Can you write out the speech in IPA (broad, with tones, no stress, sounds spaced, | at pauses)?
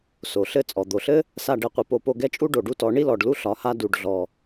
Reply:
s o˨ ɬ ɘ˦ t͡sʼ ɔ˨ d̪ o˨ ɬ ɘ˦ | s a˦˨ ɖ ɛ˦˨ qʷ i˧ p o˦˨ p o˧ ɡ ɛ˦ t͡ʃʼ u˦ ɖ o˨ ɖ u˦ t ɔ˨˦ ɳ i˦ l ɔ˨ ɖ l u˦ ɬ ɒ˨˦ h a˦ d u˧ ɖ ɮ ɔ˧